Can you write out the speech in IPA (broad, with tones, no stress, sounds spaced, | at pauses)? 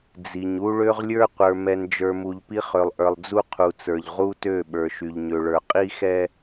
d͡z i˨ ɲ u˦ ɭ ø˦ ʁ lʲ ə˞˦ qʷ ə˞˨ m ɛ˨ n d͡ʒ ə˞˨ m u˨ ʎ p i˦ χ ø˨ lˠ ʔ ə˞˨ lˠ d͡z u˦ qʰ u˨ t͡s ə˞˨ ʎ ʁ u˦ t ø˦˨ ɓ ə˞˨ ʃ y˨ ʎ ɲ ø˨ ɭ ə˞˨ qʼ i˦ x ɛ˦